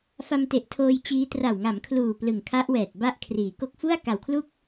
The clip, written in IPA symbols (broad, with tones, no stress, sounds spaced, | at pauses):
f a˧ m t e˨˩ ʔ tʰ oː˧ j t͡ɕ iː˦˥ t r a˨˩ w ŋ a˩˦ m kʰ l uː˨˩ p l ɯ˨˩ ŋ kʰ a˦˥ ʔ w ɛː˨˩ t̚ b a˦˥ ʔ kʰ r iː˩˦ k o˦˥ k̚ f u˥˩ a̯ k a˨˩ w kʰ l u˥˩ k̚